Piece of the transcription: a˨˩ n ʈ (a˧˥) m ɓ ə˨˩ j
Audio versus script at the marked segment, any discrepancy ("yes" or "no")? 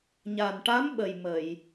no